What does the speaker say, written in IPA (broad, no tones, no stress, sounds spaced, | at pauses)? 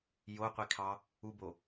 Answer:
j o qʷ i kʰ ɑ | u b o